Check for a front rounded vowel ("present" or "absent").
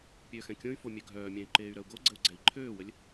present